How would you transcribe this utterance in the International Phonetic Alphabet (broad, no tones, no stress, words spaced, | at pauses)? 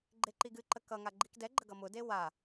ɡ͡ǃeǃiɡɨǃə kʌŋa ɡ͡ǃikdɛɡ͡ǃə ɡʌmʊde wa